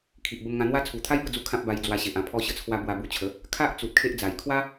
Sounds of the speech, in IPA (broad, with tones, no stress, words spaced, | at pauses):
kʰi˨ʔbə˧mŋã˧n̪wa˦ t͡sʰu˨˩t̪ʰa˦jbə˥˧d͡zu˧ kʰã˦p̚ba˧j d͡zwa˧ɕe˨ʔã˥˧ pʰɔ˧ɕə˧t͡sʰwa˧ bwa˧bu˧t͡ɕʰə˨˦ | kʰa˦ʔ t͡su˨t̚kʰe˦ʔd͡za˨˩j kʰwa˦